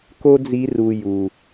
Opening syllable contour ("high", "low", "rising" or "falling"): high